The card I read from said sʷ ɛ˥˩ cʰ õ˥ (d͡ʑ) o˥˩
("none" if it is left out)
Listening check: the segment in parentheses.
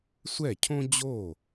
d͡ʑ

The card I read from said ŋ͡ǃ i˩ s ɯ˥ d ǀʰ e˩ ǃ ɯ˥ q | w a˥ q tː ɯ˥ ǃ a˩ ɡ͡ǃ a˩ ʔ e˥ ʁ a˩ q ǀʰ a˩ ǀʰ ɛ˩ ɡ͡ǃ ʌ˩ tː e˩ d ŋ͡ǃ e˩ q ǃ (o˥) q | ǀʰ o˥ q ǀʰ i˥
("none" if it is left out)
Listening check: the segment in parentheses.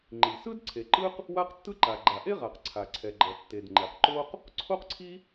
o˥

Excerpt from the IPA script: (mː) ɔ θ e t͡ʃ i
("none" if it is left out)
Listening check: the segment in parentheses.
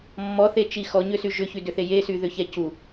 mː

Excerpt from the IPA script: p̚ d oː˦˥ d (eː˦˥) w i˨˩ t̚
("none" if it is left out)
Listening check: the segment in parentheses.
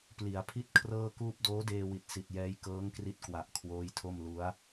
eː˧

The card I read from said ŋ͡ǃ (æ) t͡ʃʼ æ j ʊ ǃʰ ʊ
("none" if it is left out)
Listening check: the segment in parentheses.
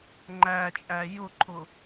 æ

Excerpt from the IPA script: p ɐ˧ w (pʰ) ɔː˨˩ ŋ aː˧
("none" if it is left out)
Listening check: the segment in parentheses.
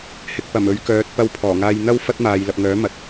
pʰ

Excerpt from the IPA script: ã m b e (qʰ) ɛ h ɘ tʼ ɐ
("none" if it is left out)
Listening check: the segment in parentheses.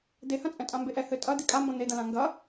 ʔ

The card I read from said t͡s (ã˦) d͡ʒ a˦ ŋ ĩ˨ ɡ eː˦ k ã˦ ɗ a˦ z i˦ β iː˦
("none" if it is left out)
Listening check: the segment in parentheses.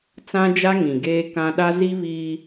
ã˦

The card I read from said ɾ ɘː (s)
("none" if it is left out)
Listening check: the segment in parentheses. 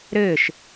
ʃ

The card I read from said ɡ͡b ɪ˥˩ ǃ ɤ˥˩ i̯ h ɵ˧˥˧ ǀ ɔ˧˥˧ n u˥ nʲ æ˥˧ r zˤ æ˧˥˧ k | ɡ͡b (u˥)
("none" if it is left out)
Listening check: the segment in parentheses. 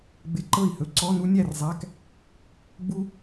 u˥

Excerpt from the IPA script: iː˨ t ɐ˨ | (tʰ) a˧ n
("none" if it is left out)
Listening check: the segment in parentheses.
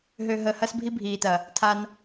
tʰ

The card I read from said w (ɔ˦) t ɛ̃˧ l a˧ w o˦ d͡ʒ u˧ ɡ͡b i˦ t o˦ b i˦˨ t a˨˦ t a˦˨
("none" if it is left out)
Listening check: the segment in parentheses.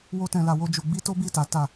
o˦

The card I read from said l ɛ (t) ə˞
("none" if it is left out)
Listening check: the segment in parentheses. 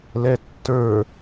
tː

